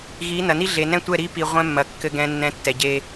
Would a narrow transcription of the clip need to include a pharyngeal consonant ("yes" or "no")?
no